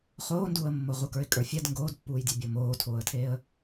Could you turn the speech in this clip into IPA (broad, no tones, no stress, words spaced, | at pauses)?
χoːnduːə̯mːo ʁukə˞ɪ̯kʼə˞fʲɛd ŋɡoːdpːuːjdʲɛ bʲomoːtʰoːə̯tʰeːə̯